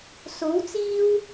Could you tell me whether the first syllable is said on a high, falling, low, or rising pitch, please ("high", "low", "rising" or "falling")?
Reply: rising